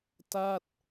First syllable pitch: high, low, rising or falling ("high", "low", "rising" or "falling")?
falling